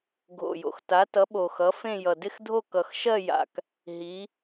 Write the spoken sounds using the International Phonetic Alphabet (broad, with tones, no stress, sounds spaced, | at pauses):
ɡʱ o̰˨˩ j o̰˨˩ x t a˨˥ t ʌ˨˥ ɓ o˨˩ x ʌ˨˥ f ẽ˥˧ j ʌ˨˩ d ɪ˥˧ x dʱ o˥˧ k ʌ˨˩ x ʃ ɜ˥˧ j a̰˨˩ k | ɦ i˨˥